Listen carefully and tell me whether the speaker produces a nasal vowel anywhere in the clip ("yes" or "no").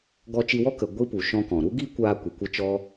yes